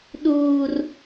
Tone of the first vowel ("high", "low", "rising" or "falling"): high